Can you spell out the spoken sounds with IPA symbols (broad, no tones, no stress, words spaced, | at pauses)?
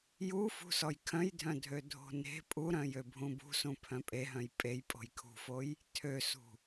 jufṳsɔj kʰœ̃jdʱœ̃ dʱødʱo̤ne̤ pʼuɾœ̃jø bʱũbṳsũ pʰœ̃pʼeɦœ̃j pʼej pʼo̤jkʰṳfoj | tʰøsṳ